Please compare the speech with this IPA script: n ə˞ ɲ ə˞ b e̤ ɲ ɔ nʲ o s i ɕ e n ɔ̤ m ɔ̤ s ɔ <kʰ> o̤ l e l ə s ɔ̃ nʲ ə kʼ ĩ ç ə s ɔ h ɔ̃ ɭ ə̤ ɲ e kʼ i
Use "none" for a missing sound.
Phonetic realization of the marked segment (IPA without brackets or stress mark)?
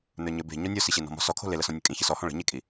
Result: kʰ